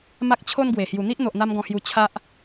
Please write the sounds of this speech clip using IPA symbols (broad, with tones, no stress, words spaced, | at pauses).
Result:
ma˦k̚t͡ɕʰo˦nɡwe˨˩ hju˨˩n̪i˦ʔn̪o˨ʔ n̪a˦mɡɔ̃˧hju˧ t͡ɕʰa˦ʔ